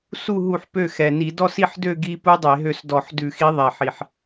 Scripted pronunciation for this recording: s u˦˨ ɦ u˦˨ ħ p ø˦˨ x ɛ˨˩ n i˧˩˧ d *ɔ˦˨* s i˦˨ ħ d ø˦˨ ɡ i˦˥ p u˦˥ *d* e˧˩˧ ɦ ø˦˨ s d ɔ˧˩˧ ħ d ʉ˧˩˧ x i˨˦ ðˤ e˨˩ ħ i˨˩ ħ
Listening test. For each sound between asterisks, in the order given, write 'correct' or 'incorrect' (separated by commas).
correct, incorrect